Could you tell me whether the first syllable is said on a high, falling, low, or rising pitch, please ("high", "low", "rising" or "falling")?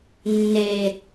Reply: low